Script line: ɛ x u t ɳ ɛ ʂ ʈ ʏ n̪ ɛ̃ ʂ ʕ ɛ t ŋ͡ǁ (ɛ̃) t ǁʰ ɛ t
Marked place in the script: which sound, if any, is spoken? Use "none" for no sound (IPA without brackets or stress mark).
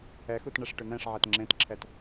ẽ